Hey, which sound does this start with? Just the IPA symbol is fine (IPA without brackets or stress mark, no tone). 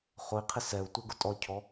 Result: χ